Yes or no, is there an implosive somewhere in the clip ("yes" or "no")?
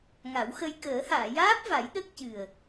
yes